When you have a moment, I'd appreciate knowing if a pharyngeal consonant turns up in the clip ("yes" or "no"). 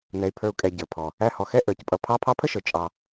no